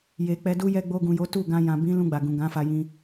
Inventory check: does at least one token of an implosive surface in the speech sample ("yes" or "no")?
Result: no